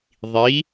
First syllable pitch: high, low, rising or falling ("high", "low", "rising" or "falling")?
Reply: rising